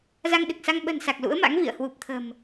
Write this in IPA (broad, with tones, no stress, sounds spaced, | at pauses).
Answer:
z a˧ ŋ ɗ ɨ˨˩ k̚ s a˧ ŋ ɓ ə̤˨˩ n s a˨˩ k̚ l ṵ˧˥ ə̯ m a̰˧˥ ŋ v ḭ˧˨ ə̯ h w u˨˩ p̚ t̪ʰ ə̤˨˩ m